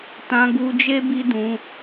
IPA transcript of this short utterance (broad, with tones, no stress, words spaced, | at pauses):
tã˧ɡu˧d͡ʒe˦ bi˦dũ˧